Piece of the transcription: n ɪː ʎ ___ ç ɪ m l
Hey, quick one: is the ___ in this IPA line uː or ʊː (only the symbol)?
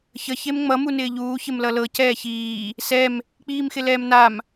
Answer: uː